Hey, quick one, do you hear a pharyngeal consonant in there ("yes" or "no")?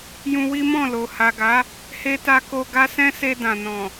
no